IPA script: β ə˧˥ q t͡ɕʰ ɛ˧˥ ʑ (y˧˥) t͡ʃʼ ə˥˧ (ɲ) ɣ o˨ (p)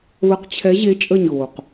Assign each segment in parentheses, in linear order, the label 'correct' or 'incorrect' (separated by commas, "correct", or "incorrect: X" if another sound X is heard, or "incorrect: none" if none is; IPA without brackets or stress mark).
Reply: incorrect: e˧˥, correct, incorrect: q